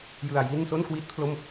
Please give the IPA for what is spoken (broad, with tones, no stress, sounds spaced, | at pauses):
j ɯ˧ a̯ j i˥˩ n s o˥˩ n k w i˦˥ t̚ pʰ l o˥˩ m